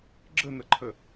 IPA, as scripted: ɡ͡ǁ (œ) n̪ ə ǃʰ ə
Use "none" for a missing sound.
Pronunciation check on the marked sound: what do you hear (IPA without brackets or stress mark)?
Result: ə